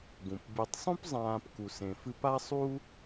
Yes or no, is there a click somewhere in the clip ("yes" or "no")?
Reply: no